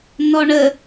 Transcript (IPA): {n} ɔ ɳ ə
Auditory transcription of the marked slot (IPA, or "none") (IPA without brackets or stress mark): n